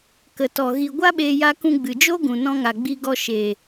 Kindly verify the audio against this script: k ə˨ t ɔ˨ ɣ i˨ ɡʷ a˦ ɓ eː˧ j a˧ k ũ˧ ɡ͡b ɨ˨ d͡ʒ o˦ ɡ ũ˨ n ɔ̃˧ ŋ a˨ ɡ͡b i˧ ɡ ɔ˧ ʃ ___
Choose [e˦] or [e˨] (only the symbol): e˨